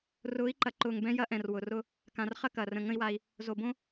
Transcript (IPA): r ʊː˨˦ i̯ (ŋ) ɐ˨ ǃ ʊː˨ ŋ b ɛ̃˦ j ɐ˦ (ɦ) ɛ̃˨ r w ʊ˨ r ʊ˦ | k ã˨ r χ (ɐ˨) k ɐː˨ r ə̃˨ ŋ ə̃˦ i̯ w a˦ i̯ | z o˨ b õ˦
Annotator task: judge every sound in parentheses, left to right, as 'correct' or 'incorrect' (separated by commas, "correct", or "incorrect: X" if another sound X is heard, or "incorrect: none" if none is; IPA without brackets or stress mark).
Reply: incorrect: ǃ, incorrect: ʔ, incorrect: ɐ˦